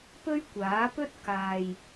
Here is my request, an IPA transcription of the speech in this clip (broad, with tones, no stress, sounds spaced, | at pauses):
p ɵ˥ ɥ kʷ aː˨˥ p ɵ˥ t̚ k aː˨ j